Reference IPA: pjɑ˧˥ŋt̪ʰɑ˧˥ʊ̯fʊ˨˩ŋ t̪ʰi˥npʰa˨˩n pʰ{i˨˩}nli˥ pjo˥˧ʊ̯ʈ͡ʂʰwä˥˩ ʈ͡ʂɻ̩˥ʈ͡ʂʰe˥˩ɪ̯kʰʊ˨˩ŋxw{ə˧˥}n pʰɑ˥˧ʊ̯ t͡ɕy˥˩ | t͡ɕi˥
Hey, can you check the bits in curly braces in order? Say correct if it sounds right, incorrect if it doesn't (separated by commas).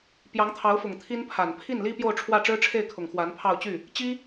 incorrect, incorrect